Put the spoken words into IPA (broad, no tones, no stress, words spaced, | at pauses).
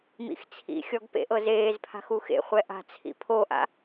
mḭxt͡sʰḭxʲɔɡ pḛʔɤzeːzpʰa̤x uxḛχʷɛ ʔa̤t͡sʰḭ pʰoʔa̰